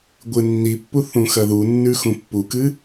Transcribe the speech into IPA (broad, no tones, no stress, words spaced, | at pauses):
ɡʷɨnːipːu θũxɐðunːʉ xũpːukɨ